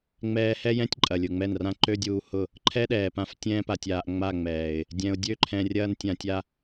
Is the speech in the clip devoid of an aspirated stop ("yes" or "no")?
no